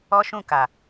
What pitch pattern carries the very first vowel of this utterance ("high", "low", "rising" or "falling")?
high